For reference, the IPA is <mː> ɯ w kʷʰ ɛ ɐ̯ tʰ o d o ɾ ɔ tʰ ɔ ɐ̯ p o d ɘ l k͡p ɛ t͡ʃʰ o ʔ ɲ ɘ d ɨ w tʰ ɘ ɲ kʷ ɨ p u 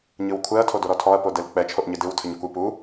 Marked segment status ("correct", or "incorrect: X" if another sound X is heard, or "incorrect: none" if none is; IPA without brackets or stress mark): incorrect: ɲ